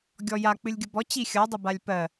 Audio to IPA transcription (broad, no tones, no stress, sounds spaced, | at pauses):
ɡʲ ɔ j a k͡p ɨ lʲ ɡʲ ə b ɔ t͡ɕ i xʲ ʌ dˤ ə b a lʲ p ɜ